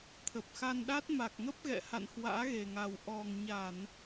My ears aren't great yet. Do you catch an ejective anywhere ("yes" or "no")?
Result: no